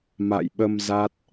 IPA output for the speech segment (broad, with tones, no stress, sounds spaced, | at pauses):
m a̰˧˨ j ɓ ə˧ m z a˦˥ t̚